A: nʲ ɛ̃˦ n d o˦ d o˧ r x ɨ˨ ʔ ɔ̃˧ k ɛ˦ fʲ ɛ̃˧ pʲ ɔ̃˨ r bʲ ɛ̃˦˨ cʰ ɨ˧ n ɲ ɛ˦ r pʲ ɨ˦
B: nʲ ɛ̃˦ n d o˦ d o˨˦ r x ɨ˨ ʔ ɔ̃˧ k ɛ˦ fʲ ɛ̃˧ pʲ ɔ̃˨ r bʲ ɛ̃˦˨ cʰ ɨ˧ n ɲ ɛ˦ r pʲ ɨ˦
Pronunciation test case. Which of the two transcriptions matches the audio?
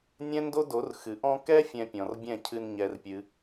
B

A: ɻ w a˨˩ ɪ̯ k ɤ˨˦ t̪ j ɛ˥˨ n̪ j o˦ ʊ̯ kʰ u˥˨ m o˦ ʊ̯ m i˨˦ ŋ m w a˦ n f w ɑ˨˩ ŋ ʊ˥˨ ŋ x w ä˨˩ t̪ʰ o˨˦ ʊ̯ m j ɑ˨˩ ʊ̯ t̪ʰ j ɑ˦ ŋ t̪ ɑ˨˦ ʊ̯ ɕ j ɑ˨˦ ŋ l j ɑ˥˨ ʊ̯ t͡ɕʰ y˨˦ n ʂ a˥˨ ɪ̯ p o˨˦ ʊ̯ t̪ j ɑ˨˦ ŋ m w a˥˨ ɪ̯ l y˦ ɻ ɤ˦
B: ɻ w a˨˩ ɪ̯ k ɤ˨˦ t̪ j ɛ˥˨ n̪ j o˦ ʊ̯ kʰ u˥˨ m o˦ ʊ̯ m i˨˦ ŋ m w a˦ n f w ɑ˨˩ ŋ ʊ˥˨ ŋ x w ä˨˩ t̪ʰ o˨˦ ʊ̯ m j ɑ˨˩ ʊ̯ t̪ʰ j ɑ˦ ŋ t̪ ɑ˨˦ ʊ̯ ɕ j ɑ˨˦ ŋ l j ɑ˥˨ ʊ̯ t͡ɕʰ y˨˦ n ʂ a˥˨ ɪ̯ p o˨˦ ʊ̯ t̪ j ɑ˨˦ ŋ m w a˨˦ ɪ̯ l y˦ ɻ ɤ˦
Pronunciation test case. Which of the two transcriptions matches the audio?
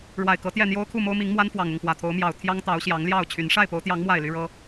A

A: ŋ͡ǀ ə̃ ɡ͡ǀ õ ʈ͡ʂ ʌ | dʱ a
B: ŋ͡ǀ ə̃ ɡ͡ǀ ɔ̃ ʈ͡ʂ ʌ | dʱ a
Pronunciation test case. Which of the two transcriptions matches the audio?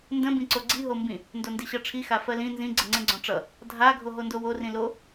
B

